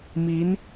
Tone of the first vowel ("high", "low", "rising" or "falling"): rising